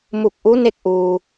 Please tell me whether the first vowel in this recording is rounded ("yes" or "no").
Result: yes